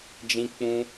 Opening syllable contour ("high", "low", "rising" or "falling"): high